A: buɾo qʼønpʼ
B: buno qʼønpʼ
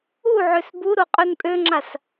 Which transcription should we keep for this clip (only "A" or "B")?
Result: A